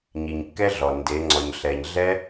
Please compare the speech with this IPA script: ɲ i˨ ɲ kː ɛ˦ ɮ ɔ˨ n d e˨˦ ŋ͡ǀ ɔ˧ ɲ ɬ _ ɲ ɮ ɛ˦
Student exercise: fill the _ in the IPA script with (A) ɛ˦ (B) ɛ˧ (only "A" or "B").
B